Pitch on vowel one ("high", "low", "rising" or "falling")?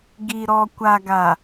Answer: low